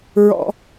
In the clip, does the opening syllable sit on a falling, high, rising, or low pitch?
high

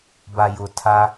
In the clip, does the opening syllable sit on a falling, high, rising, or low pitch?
low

